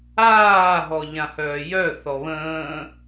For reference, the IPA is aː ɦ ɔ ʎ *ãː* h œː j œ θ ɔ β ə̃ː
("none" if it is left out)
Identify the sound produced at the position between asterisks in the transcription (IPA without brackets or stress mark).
ã